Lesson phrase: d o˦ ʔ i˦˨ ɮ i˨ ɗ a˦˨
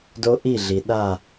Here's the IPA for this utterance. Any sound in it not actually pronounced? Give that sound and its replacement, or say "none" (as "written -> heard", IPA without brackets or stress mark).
none